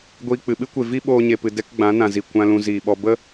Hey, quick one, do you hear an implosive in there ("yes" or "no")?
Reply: yes